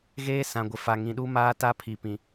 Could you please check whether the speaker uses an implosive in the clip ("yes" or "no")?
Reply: yes